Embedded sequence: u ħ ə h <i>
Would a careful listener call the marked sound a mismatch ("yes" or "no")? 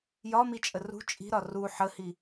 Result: no